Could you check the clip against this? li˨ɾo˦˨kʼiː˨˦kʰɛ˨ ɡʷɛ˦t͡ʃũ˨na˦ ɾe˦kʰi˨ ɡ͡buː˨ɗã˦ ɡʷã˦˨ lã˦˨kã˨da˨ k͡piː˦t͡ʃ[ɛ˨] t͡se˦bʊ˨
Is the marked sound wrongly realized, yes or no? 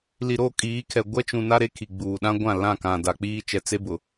no